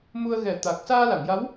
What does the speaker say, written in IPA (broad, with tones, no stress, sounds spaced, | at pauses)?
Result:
m u˧ ə̯ ɣ ɛ˨˩˦ t̪ a˨˩ k̚ s aː˧ l a˨˩˨ ŋ j a˧˥ w